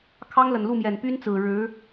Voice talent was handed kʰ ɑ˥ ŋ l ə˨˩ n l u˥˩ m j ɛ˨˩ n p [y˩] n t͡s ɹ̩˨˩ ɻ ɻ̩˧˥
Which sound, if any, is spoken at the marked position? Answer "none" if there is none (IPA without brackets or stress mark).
y˥